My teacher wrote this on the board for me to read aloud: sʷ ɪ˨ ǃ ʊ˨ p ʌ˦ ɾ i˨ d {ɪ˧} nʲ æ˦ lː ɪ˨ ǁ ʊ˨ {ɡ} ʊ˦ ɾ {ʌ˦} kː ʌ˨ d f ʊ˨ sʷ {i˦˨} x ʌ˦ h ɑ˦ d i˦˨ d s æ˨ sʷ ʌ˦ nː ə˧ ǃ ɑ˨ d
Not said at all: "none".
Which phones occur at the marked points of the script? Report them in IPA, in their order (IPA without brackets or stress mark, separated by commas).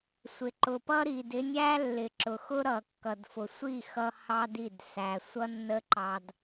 ɪ˧, x, ʌ˨, i˦˨